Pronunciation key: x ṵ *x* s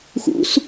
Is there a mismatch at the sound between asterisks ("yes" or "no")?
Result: yes